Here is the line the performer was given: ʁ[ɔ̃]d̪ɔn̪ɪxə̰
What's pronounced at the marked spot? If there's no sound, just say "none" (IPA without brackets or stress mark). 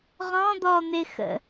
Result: ɔ̃